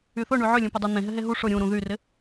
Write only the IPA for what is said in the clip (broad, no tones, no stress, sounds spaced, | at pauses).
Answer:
y θ ʊ ɳ y ʕ ʏ lʲ ũ p ʏ dˤ u n̪ ẽ ɦ ɪ ɦ e ɦ u ʂ ʊ ɾʲ ũ ɾ ũ ð y r ɪ